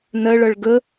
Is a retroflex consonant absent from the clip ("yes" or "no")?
no